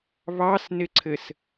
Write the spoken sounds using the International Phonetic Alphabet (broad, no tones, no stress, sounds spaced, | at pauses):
β ɑ s n ɪ ǀʰ ɘ s